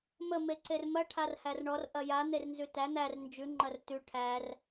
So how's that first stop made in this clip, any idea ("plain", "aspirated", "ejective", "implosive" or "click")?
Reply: click